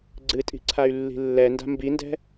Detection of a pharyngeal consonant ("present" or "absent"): absent